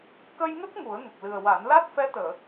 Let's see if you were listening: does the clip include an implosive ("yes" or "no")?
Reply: no